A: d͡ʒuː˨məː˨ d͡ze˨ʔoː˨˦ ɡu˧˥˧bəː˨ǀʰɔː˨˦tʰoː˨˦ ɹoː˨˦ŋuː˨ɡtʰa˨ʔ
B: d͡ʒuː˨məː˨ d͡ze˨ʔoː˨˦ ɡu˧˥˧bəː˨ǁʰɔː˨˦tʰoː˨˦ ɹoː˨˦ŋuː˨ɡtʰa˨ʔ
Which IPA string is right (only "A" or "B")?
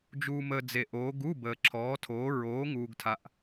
B